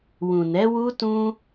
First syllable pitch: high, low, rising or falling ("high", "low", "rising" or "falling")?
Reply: low